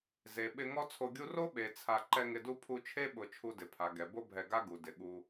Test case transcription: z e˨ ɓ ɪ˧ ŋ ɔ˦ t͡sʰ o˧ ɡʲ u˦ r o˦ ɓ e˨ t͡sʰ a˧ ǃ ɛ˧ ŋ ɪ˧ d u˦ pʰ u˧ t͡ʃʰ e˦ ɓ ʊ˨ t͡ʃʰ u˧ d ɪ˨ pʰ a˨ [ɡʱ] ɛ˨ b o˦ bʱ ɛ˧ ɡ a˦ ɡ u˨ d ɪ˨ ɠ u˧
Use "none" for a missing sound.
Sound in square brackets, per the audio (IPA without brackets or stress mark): ɡ